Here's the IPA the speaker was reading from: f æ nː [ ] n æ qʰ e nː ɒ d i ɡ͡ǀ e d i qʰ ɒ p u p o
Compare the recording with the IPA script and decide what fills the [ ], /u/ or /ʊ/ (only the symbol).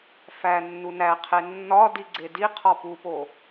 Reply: u